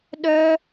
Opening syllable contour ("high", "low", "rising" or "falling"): high